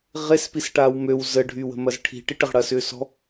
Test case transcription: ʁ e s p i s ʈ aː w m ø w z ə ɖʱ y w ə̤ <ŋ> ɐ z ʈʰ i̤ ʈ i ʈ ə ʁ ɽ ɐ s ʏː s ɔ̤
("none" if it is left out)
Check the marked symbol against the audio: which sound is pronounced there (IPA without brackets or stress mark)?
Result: m